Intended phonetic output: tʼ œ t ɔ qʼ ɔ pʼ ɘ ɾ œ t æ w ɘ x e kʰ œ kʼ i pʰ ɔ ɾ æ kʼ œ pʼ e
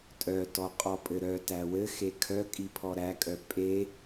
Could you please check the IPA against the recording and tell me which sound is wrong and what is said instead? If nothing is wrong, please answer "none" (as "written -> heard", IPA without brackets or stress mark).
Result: none